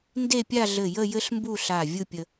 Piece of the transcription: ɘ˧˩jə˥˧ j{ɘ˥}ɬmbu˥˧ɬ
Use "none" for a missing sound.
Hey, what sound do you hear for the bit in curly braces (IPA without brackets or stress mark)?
ɘ˥